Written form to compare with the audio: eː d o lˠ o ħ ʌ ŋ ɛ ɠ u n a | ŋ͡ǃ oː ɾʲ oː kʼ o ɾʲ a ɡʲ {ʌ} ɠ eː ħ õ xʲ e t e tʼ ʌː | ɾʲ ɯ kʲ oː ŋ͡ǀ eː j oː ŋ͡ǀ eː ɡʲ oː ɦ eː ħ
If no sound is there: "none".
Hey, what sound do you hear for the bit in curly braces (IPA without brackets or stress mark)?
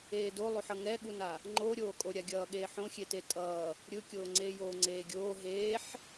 ʌː